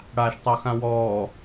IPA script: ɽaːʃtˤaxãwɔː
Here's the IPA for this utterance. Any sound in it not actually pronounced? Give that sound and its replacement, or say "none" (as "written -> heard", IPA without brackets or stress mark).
none